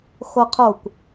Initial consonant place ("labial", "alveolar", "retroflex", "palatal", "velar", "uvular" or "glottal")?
velar